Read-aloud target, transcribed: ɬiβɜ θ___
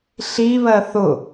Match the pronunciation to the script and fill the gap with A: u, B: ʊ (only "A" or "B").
B